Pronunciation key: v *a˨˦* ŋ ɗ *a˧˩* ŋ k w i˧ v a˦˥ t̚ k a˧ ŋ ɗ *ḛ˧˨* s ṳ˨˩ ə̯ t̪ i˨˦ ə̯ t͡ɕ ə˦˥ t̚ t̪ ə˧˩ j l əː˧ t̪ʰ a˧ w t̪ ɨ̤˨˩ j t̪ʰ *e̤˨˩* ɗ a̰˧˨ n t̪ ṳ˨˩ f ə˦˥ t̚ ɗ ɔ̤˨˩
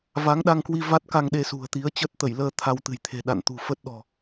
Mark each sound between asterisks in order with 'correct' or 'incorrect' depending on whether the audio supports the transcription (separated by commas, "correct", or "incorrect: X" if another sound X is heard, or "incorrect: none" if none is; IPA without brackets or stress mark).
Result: correct, incorrect: a˧, incorrect: e˧, correct